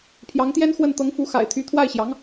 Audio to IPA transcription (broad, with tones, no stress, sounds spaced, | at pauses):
pʰ j ɑ˧˥ ŋ t̪ j ɛ˥ n x w ə˥˩ n t̪ ɤ˧˥ ŋ f u˧˥ x a̰˨˩ ɪ̯ t̪ʰ y˧˥ t̪ʰ w a˥˩ ɪ̯ ɕ j ɑ˧˥ ŋ